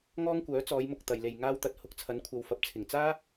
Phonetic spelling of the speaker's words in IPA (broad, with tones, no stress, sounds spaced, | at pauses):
ŋ ɔː˥ ŋ kʷ œː˨˥ t͡s ɔː˨˧ j m ʊ˨ k̚ t̪ ɐ˨ j l e˨ j ŋ aː˥ w t̪ ɐ˨˥ t̚ h ʊ˨˥ k̚ t͡sʰ ɐ˨˥ n kʷʰ ɐ˨ w f ɐ˨ p̚ t͡sʰ ɪ˨˩ ŋ t͡s aː˥